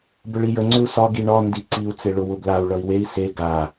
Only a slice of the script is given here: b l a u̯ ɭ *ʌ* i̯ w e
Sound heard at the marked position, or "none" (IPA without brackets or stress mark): ʌ